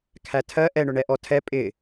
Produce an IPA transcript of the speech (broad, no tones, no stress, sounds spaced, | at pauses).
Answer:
kʰ æ tʰ ɜ ʔ ɛ ɳ ʊ ɳ ɛ ʔ ɔ tʰ ɛ pʼ ɪ